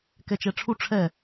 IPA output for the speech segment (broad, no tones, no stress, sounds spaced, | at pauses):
k ɛ t͡ʃ ɛ ʈ͡ʂʰ u ʈ͡ʂʰ ɛ